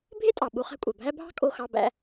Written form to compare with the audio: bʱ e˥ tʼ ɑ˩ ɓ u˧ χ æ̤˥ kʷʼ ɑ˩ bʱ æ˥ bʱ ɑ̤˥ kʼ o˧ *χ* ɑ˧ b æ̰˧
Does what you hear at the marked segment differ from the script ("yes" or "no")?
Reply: yes